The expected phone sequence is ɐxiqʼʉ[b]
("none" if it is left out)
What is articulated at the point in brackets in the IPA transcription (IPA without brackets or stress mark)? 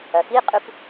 p